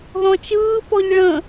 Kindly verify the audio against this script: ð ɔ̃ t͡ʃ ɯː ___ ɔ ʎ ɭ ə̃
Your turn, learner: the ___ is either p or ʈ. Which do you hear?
p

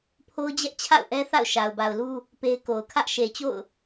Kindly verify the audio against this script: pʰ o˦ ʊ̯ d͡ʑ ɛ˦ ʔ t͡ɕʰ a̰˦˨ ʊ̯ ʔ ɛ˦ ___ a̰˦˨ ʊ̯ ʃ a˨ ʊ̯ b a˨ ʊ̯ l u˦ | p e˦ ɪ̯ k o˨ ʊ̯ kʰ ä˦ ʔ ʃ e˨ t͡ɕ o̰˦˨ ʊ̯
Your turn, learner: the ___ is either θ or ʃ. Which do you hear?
θ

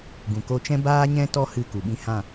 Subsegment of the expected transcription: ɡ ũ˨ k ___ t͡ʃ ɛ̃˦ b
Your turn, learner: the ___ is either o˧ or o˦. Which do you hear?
o˧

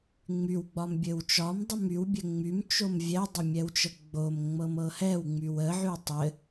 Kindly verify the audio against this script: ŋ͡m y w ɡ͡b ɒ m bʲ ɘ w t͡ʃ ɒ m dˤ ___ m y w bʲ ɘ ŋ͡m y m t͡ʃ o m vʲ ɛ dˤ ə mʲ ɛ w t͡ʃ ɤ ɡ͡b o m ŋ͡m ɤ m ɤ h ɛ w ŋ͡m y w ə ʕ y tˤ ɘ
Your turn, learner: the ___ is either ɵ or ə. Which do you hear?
ə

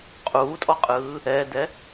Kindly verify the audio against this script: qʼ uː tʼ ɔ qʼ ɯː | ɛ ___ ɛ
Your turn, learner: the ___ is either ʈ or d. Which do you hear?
d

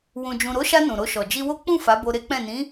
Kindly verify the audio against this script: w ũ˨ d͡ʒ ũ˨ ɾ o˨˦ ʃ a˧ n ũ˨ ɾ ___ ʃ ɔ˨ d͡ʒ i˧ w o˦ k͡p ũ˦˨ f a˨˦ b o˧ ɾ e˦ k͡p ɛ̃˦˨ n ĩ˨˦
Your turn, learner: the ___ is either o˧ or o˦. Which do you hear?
o˧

